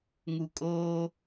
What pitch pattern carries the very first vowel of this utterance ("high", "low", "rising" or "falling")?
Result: low